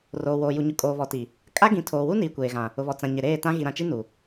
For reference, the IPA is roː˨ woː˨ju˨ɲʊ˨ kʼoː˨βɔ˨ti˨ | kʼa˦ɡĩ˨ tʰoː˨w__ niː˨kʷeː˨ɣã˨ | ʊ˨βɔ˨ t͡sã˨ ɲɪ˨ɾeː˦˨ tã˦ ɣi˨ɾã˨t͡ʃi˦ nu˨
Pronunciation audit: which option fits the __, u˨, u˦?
u˦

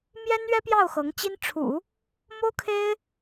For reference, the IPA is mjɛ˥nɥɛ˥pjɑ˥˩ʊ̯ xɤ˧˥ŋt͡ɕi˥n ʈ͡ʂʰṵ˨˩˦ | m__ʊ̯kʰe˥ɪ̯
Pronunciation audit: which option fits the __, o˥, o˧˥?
o˥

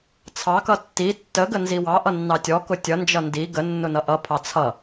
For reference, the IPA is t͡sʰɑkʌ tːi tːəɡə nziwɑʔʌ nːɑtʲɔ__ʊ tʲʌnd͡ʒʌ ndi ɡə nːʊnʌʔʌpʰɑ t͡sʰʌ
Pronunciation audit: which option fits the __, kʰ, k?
k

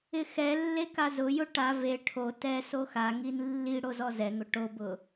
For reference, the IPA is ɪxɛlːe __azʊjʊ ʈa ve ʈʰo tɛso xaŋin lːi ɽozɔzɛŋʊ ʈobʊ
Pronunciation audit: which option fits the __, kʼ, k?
k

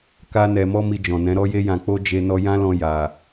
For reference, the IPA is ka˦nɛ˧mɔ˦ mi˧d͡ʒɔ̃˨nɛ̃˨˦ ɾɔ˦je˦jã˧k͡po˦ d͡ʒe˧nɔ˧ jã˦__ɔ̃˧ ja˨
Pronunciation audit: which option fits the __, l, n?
l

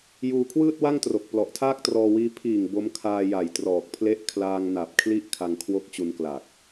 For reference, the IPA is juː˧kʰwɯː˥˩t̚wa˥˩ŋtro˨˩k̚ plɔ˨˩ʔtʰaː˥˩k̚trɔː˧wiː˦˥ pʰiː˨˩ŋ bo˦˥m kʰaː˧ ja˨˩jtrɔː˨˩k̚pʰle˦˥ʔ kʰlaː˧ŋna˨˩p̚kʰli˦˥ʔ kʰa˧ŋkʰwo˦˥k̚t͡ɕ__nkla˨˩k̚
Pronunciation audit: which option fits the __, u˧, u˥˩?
u˧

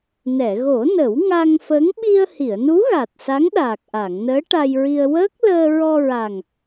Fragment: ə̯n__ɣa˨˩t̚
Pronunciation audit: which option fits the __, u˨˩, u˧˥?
u˧˥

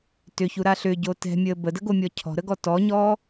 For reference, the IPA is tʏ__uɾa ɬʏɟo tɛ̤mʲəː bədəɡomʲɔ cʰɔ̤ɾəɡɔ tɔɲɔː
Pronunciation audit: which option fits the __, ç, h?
ç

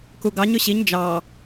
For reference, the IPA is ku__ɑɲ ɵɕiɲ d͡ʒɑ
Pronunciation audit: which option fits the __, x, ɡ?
ɡ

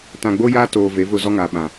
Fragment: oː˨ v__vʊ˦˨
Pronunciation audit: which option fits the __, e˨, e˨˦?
e˨˦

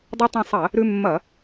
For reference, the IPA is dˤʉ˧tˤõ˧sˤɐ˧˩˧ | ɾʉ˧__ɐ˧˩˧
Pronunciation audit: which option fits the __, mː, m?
mː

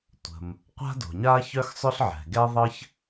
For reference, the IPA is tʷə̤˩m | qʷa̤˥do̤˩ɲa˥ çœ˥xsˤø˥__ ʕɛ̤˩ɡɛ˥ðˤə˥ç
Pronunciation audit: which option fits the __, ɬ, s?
ɬ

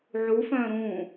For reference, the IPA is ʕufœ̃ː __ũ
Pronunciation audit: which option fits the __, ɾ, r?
ɾ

